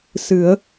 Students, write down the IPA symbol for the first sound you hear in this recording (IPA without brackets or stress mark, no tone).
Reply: s